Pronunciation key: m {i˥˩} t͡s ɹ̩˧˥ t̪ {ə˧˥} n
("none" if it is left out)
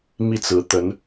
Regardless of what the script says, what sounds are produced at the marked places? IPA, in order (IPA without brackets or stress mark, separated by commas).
i˥˩, ə˧˥